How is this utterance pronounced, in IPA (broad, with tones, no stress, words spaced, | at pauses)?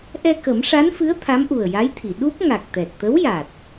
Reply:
ʔɛ˧kə˨˩˦mʂa˧˥nfɨ˧˥ə̯ t̪ʰa˧˥mʔu˨˩ə̯ja˧˥jt̪ʰi˨˩˨ ɗu˦˥p̚ ŋa˨˩k̚t̪ɛ˨˩t̚t̪ə˧˥wja˨˩t̚